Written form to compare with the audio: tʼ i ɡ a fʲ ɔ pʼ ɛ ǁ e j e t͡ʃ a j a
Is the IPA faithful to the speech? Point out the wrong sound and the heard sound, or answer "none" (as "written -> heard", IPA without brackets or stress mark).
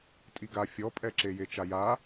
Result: none